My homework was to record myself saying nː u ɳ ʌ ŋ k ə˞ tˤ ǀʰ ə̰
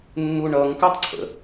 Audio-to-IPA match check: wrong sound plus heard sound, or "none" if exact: none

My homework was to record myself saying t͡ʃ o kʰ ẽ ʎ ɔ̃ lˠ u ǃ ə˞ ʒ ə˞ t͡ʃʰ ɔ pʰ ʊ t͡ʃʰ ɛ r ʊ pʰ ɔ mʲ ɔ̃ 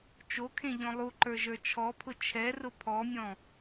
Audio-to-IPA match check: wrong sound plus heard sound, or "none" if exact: none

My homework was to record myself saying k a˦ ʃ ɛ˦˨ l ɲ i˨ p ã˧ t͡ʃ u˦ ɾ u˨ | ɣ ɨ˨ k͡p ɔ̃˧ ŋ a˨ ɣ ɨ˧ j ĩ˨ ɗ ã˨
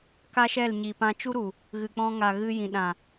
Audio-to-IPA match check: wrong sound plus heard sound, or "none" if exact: none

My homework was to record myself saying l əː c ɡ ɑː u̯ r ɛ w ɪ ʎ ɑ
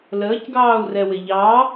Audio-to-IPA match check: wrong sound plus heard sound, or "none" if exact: none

